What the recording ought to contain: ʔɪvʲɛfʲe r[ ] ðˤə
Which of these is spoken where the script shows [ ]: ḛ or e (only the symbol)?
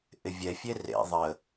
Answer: ḛ